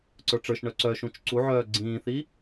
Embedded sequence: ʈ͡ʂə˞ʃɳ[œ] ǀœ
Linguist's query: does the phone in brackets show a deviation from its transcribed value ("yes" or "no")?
no